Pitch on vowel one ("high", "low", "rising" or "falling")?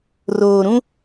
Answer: low